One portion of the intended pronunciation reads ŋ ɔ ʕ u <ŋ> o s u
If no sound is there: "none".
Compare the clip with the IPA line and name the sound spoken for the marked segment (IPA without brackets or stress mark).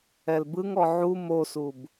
m